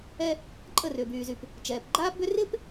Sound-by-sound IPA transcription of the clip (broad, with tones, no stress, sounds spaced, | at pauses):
ɛ˦ | ǃʼ ə˦˨ r ʏ˨ b yː˨ z y˨ p | t͡ʃ ɛː˨ p ɡ͡ǃ aː˦ p b ʏ˦ r ɪː˦ p